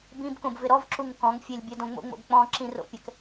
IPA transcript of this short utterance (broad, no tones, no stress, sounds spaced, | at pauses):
b ĩ b k õ b v ɪ ɾ ɔ v ǁ u ŋ k ɔ̃ ŋ fʲ e lʲ bʲ ɛ d õ ŋ͡m o̰ ŋ͡m o̰ b k͡p ɔ̃ ǁ ĩ r o̰ pʲ ɛ k